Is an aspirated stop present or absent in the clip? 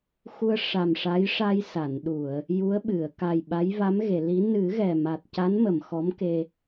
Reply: absent